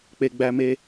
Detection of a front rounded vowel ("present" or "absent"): absent